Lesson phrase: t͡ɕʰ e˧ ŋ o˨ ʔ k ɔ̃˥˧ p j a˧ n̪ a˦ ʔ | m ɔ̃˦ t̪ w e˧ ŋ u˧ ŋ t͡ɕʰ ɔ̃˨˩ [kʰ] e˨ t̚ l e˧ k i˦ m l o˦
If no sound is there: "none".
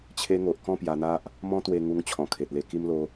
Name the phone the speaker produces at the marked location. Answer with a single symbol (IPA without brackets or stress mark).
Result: kʰ